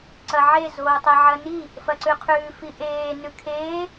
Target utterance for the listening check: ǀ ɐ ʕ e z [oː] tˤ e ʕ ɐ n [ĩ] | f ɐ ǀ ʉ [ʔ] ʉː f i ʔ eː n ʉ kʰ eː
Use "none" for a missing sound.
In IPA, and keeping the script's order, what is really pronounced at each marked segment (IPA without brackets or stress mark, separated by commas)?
oː, i, qʰ